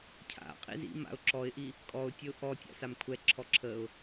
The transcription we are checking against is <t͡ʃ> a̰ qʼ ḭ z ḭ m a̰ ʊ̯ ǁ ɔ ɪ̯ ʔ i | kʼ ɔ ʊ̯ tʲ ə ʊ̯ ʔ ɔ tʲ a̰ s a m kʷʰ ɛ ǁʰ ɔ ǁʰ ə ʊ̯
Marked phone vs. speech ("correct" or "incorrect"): incorrect